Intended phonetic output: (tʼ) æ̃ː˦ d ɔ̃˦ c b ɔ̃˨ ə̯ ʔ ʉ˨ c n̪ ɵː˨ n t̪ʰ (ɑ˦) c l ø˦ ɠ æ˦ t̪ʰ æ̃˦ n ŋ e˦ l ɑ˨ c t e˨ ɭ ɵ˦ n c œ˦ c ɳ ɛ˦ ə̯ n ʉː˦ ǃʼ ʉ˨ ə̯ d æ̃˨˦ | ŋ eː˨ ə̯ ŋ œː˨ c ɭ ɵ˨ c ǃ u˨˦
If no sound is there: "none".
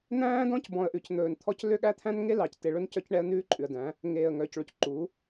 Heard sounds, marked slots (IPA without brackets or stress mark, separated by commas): n̪, ɔ˦